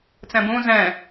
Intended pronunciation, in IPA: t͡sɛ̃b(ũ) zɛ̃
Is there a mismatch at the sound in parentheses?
no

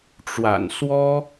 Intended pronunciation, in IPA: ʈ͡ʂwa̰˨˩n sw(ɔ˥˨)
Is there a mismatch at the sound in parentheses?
yes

